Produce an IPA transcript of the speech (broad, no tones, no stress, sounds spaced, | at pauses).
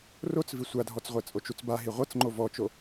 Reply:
r o t͡s v i sʷ a dʱ ɔ t͡s ʁʷ ɛ t͡sʼ o t͡ʃ u t͡s b a ɦ i ʁʷ ɤ t͡s ŋ͡ǃ o v ɔ t͡ʃ o